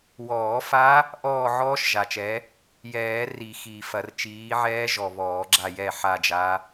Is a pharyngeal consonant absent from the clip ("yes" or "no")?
no